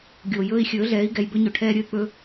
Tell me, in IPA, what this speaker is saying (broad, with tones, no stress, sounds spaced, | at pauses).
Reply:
ɡʲ oː˨ j ɵː˧ i̯ xʲ ɵː˨˦ ɮ ɛː˨˦ i̯ ɡ ɛ˨ j b ɵ˧ ɲ ɵ˨ ʈʰ ɛː˧ ɾʲ ɵ˧ y̯ k͡p ɵ˧